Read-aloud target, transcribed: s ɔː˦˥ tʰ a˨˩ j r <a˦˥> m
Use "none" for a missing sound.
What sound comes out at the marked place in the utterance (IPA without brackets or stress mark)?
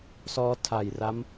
a˦˥